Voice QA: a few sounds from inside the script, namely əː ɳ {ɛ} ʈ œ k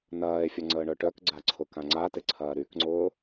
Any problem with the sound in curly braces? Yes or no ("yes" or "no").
yes